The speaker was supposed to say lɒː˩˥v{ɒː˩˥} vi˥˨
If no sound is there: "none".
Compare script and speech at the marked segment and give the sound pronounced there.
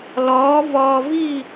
ɒː˧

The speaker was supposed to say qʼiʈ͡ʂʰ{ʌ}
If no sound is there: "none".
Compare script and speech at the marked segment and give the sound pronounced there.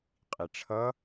ʌ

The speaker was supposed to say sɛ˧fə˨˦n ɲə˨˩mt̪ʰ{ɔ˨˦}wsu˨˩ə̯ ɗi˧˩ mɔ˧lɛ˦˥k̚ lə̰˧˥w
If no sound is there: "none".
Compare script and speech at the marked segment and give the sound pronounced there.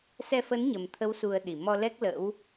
ə˨˦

